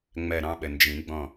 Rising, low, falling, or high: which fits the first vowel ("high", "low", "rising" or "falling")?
falling